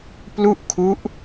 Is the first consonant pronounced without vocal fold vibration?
yes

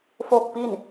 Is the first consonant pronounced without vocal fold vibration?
yes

